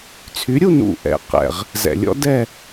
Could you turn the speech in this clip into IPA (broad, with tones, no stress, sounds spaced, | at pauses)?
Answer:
t͡sʰ y˨˥ ɾʲ u˥˧ n ṵ˨˩ ʔ ɛ̰˨˩ q ɛ̰˨˩ ʁ | z ɛ̰˨˩˦ lʲ ɔ̰˨˥ d ɛ˥˧